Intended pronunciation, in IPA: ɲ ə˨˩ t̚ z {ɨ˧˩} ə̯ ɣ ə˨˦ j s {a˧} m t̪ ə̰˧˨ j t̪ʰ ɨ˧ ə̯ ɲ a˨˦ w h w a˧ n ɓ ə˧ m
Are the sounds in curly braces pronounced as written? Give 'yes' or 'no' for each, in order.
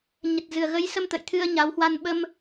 no, no

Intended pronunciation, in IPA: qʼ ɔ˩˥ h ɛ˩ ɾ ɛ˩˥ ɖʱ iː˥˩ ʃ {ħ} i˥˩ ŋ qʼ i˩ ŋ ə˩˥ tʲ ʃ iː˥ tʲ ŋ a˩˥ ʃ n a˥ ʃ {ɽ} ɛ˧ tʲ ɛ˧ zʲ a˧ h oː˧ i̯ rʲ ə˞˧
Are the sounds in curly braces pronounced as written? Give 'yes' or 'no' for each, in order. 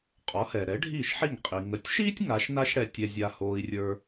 yes, yes

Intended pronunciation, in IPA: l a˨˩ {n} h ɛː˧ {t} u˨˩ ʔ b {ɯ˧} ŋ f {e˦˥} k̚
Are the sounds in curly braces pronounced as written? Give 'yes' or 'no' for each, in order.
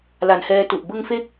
yes, yes, yes, yes

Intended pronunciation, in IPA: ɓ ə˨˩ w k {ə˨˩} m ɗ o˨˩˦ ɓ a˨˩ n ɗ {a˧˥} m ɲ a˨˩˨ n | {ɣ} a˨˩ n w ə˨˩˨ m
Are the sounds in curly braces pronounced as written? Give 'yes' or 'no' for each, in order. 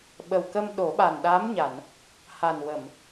no, yes, no

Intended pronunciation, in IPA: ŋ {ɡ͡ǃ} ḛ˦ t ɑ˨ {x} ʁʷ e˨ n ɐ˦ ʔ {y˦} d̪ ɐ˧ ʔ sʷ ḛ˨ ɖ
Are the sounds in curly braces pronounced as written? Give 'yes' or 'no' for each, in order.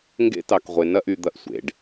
no, no, no

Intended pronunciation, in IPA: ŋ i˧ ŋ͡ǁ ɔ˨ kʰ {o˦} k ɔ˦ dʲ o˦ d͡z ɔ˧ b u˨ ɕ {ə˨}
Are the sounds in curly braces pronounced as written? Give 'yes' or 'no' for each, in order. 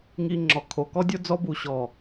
no, no

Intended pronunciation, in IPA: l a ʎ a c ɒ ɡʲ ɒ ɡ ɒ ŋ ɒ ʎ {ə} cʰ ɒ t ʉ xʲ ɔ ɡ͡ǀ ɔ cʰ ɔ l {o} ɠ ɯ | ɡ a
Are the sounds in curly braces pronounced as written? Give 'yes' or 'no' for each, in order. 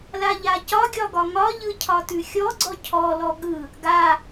no, no

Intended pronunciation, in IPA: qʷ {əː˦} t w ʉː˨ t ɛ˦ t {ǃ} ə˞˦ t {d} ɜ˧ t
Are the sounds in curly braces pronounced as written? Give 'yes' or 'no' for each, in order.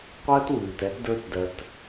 yes, no, yes

